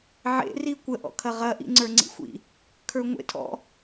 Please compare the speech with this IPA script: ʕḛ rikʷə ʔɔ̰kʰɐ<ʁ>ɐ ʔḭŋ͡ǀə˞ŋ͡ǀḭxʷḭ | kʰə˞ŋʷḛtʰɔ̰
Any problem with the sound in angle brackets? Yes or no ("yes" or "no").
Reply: no